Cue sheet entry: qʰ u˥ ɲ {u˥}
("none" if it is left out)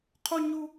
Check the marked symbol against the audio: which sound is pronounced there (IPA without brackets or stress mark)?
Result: u˥